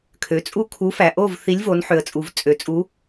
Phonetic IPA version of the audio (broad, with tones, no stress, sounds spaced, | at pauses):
kʰ ø˩˧ t͡sʼ u˥˨ kʰ u˨˥ f æ˩ ʔ o˥˨ v θ i˨˥ lʲ v o˩˧ n ħ ø˩ ə̯ t͡sʼ u˩ v t͡sʼ ø˩ t͡sʼ u˨˥